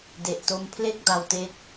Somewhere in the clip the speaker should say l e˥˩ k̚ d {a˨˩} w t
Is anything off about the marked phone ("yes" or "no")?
yes